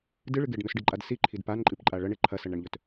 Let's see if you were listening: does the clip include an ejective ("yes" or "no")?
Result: yes